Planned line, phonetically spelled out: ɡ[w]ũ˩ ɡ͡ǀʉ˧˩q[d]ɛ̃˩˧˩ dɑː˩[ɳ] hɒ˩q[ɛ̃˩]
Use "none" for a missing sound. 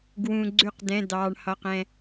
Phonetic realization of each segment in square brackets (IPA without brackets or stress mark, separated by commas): w, d, ɳ, ɛ̃˩